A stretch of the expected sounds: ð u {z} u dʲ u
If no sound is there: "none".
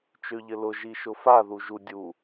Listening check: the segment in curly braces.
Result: ʒ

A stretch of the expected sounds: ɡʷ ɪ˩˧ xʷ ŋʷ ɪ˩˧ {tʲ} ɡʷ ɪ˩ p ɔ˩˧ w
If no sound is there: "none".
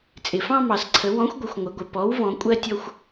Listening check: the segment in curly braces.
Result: none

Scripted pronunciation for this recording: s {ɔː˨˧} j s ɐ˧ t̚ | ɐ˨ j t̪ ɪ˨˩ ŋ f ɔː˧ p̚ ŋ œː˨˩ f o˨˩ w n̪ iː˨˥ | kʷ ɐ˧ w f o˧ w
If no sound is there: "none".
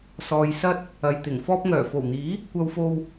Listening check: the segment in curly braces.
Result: ɔː˨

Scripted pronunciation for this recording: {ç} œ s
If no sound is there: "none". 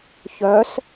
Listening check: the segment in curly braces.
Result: ç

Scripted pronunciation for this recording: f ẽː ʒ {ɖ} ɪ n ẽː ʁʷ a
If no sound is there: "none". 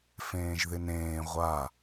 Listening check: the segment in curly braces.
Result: ð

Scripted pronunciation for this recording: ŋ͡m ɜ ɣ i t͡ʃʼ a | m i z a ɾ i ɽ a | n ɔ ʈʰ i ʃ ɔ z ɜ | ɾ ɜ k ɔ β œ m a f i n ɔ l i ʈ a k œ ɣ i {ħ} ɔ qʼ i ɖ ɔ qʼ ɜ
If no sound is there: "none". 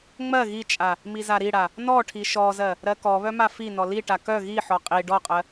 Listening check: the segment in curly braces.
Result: ħ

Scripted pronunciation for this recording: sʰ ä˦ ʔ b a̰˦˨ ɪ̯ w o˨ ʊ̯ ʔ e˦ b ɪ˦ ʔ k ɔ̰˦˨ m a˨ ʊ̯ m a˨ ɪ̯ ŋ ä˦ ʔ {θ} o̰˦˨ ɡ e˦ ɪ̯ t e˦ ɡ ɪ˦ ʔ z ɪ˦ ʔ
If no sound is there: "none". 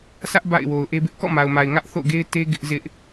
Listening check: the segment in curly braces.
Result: θ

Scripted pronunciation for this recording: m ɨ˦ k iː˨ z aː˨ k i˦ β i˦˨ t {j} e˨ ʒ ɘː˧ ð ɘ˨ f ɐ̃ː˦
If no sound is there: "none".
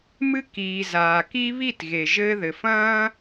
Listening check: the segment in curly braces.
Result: ɣ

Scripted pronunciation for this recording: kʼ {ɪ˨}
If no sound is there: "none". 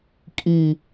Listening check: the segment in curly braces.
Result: i˨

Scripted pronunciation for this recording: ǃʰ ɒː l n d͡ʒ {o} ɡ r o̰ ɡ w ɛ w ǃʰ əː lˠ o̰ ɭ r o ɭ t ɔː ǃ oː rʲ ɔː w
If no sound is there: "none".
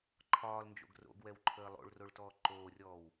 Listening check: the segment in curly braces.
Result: o̰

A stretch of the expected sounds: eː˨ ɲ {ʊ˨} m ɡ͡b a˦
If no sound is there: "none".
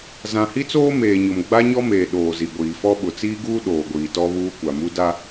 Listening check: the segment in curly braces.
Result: ʊ˨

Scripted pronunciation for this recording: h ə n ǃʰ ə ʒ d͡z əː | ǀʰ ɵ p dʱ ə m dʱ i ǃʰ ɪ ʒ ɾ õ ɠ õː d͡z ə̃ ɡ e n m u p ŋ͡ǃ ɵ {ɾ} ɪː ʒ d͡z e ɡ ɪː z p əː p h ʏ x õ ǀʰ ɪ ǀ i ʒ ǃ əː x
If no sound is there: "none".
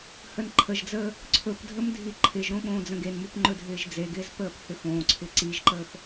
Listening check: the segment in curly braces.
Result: dʱ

